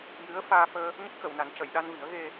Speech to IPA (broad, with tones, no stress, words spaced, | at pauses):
jɨ˧˥ə̯ faː˧ fəː˧ | ɲə˦˥k̚xə˨˩˨wna˨˩˦ncə˨˩˨j ɗa˧nvi˨˩˦ə̯ ɣe˧